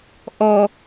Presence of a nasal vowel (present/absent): absent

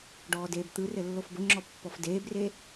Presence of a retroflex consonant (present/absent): present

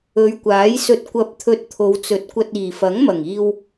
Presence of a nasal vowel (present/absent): absent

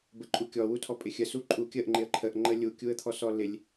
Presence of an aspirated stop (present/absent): present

